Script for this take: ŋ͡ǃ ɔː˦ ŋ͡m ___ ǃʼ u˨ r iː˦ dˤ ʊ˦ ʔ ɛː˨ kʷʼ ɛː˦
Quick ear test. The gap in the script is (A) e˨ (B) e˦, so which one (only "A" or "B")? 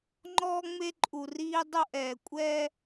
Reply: B